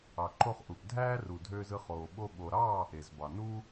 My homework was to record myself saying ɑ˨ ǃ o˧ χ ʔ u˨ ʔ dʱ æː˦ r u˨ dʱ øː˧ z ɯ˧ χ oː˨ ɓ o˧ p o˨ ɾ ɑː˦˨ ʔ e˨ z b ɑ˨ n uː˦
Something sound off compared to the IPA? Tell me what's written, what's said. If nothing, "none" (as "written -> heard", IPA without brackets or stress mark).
p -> ɓ